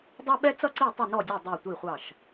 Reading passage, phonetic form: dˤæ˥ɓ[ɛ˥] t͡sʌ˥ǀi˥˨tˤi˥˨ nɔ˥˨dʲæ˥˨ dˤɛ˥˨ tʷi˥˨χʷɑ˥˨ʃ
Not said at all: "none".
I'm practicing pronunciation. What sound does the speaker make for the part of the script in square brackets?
ɛ˥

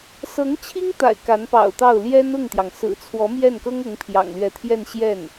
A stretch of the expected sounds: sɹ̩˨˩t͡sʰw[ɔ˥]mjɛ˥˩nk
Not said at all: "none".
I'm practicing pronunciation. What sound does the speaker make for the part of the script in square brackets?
ɔ˧˥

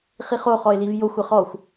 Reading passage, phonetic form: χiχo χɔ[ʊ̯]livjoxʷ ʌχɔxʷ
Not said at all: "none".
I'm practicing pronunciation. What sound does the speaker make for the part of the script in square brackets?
ɪ̯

